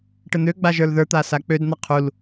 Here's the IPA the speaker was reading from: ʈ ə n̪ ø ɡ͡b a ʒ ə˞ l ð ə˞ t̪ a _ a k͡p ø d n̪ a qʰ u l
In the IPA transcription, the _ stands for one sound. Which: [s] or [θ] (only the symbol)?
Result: s